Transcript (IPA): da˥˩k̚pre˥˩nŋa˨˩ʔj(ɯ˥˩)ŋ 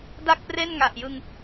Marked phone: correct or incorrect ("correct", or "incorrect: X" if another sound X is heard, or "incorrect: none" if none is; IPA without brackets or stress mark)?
incorrect: ɯ˧